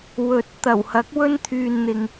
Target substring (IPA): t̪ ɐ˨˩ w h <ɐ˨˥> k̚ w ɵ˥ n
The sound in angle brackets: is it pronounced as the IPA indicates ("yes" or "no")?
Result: yes